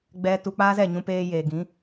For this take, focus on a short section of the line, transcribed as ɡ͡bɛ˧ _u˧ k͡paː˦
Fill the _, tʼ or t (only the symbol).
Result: t